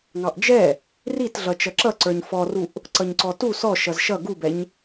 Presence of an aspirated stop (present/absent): absent